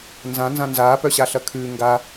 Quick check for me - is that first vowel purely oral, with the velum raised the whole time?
no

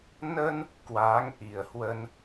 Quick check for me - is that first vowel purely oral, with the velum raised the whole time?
yes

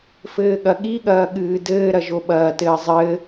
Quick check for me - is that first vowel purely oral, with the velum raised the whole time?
yes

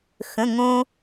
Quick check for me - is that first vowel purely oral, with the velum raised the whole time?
no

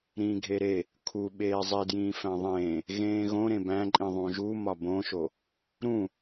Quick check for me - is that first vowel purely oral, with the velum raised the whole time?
no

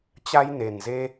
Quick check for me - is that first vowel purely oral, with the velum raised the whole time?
yes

